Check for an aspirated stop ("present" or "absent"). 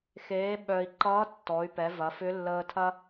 present